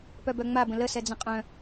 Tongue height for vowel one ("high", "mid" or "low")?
mid